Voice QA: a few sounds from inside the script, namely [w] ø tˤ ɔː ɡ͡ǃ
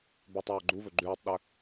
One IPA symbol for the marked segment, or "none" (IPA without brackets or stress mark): b